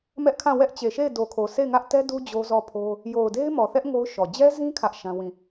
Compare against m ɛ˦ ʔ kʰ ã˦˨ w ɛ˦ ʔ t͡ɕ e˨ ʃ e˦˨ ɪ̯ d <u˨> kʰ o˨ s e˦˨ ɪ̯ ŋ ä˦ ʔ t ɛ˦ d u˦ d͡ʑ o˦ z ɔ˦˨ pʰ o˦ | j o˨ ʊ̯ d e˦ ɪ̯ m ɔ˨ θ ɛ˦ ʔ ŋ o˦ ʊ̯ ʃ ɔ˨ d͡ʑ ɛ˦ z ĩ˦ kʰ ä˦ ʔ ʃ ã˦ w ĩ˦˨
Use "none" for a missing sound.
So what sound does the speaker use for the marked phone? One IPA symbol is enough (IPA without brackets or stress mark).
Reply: o˨